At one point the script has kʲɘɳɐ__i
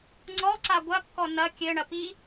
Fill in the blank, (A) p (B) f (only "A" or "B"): A